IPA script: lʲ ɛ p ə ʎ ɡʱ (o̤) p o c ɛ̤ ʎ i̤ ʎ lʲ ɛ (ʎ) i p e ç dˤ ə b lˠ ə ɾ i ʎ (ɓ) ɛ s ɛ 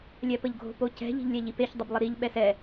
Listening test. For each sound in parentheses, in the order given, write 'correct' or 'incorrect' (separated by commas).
correct, correct, correct